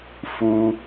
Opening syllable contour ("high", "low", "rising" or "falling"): high